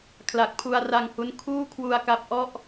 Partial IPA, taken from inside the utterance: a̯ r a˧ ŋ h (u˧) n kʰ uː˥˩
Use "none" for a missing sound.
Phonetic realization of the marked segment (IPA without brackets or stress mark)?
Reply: u˦˥